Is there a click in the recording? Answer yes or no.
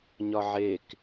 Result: no